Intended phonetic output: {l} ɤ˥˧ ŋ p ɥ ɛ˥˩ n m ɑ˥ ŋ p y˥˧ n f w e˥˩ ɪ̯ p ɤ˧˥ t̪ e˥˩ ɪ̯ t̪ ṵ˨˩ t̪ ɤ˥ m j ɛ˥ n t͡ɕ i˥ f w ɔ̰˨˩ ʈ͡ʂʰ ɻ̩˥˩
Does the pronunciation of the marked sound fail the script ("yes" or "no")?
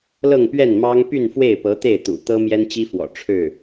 no